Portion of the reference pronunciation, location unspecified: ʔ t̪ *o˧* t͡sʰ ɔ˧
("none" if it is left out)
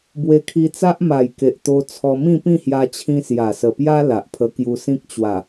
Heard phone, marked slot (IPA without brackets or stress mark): o˧